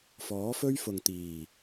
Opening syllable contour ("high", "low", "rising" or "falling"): rising